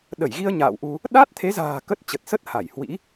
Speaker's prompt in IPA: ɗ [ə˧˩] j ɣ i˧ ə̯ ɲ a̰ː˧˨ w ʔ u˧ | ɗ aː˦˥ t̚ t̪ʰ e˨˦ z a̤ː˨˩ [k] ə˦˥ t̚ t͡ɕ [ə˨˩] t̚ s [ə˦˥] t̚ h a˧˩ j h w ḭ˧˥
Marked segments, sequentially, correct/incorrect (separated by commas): correct, correct, correct, correct